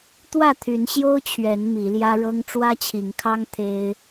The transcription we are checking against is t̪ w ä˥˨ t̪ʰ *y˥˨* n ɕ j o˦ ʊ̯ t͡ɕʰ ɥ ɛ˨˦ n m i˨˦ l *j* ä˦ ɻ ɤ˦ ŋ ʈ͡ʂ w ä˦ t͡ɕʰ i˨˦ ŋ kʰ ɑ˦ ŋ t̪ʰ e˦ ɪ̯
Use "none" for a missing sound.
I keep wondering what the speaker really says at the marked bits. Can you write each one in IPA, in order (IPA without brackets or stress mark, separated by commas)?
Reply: y˨˦, j